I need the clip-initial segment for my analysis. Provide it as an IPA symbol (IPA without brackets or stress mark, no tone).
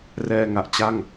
r